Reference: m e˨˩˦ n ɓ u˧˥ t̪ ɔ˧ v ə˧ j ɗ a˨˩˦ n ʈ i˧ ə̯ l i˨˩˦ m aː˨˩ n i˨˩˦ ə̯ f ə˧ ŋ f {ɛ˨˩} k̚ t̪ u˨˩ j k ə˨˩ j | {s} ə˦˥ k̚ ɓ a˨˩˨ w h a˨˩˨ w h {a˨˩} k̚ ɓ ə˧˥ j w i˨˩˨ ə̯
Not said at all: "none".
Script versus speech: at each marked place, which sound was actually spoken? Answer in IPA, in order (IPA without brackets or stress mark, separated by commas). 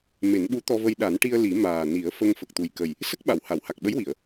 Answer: ə˨˩, s, a˨˩